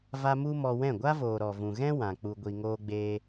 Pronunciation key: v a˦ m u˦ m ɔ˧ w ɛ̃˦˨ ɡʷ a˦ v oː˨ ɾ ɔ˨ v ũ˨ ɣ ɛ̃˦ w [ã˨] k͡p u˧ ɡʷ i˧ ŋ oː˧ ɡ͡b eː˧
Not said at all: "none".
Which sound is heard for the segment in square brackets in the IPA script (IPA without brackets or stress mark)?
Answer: ã˨